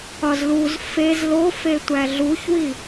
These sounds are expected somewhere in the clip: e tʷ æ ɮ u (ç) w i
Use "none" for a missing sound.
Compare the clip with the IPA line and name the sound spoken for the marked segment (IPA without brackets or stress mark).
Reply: ç